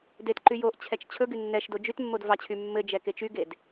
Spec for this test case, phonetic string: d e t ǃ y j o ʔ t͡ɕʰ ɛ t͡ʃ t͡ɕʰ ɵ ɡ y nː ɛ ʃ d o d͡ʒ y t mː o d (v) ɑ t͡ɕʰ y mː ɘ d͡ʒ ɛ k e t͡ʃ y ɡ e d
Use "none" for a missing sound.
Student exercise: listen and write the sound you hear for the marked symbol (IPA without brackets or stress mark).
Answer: v